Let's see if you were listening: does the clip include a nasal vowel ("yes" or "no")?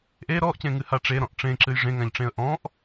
yes